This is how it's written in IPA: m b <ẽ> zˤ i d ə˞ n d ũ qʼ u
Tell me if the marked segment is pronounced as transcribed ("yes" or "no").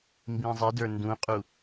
no